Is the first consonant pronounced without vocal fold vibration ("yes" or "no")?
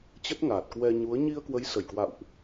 yes